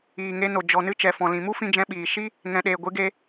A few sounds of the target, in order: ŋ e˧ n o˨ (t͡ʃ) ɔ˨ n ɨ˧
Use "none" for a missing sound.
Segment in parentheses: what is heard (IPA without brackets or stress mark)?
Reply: d͡ʒ